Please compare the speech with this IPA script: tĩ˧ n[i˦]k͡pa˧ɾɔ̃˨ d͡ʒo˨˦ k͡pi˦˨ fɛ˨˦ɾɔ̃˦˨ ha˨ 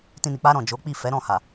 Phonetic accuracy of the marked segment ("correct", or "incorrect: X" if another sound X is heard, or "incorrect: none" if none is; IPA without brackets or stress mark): incorrect: i˨